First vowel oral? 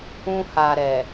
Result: no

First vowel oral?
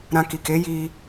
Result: no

